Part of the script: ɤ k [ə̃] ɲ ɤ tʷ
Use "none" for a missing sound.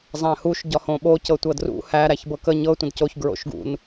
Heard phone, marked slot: ə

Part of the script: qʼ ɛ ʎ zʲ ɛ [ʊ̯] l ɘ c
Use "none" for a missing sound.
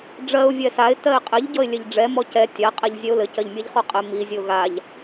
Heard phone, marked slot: ʊ̯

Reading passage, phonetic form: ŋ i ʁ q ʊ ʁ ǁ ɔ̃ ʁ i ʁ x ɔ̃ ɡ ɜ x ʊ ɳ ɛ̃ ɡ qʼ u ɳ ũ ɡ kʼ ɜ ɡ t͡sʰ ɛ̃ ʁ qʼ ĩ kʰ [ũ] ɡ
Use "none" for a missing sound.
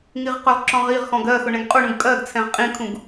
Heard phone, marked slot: ũ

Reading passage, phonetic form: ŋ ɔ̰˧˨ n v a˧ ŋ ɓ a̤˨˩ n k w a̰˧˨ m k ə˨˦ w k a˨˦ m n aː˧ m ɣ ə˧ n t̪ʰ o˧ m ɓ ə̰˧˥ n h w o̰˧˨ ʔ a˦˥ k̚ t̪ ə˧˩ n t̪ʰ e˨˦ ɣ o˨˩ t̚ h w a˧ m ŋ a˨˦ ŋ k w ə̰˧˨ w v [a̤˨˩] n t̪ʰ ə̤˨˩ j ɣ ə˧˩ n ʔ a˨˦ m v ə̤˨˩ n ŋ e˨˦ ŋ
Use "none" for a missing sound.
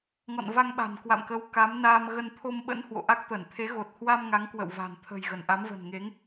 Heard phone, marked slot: a̤˨˩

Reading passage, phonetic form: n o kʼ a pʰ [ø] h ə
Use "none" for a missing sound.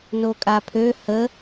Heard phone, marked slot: ø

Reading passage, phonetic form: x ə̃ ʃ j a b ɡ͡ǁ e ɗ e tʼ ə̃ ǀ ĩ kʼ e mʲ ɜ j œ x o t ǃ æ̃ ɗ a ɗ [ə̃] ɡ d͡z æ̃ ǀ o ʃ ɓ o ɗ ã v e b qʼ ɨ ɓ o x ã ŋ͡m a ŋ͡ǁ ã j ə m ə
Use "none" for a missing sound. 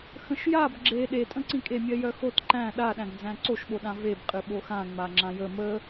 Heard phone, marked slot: æ̃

